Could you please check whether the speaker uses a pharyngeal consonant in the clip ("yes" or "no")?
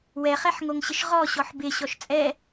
yes